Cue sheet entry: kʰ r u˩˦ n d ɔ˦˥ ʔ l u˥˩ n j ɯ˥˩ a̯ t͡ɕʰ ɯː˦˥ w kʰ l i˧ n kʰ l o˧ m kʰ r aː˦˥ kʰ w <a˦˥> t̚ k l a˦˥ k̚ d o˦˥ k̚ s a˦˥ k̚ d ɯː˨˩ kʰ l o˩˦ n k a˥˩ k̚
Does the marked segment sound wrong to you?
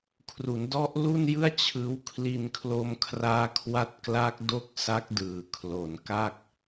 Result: no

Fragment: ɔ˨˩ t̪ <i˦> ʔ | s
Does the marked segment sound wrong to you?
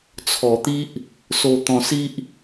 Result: no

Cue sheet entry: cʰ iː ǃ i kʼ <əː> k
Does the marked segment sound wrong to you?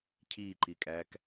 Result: yes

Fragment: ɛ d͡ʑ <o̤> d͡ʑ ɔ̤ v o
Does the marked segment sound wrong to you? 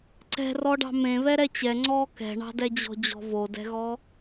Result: yes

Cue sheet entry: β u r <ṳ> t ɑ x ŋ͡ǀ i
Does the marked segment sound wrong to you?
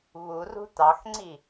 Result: no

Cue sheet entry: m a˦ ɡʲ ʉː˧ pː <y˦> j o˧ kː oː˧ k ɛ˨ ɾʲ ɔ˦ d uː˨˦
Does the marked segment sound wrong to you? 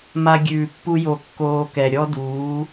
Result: yes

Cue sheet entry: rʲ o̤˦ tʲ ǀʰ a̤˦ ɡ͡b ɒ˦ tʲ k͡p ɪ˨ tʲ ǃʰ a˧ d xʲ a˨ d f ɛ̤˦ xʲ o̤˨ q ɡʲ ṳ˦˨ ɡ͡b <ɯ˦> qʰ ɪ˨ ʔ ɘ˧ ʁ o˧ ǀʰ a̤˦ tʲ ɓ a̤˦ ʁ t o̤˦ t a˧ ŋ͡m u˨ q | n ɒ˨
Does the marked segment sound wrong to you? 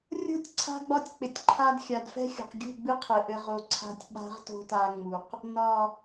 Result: no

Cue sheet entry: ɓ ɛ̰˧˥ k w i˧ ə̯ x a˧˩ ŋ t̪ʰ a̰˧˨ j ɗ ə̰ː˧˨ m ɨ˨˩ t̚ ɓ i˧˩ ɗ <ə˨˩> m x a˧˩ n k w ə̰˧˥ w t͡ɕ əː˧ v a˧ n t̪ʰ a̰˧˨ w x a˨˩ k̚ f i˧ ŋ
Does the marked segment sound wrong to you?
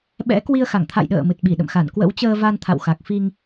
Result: yes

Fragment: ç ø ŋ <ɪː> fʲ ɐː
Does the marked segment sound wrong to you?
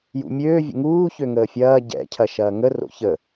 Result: yes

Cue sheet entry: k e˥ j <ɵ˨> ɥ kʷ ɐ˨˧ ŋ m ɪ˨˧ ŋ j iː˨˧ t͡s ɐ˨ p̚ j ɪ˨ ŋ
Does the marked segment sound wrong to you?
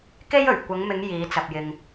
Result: yes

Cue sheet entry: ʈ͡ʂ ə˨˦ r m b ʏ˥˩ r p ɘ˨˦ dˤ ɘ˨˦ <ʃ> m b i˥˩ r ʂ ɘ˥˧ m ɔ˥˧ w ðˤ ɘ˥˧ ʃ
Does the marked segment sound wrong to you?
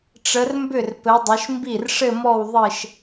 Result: no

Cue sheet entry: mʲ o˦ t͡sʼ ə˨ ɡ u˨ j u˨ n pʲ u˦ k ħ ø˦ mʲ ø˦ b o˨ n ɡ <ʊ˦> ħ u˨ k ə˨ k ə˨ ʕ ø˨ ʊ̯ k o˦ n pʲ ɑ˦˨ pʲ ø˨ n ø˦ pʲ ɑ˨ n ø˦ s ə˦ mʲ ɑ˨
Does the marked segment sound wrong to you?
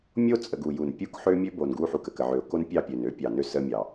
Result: yes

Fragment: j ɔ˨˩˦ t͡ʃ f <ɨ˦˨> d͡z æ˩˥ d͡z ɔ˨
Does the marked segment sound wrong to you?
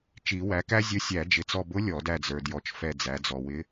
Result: yes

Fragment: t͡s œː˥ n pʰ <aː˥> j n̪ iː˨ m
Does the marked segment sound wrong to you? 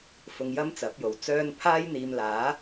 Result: no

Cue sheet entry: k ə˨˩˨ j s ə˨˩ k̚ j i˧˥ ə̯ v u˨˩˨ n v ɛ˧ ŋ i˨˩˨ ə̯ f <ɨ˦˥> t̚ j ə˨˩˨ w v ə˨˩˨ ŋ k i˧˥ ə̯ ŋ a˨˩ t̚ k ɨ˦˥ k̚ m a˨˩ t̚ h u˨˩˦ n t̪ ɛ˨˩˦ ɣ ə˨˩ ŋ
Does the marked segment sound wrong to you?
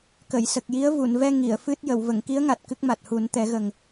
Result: no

